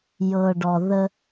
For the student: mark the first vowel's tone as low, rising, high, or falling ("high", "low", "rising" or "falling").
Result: low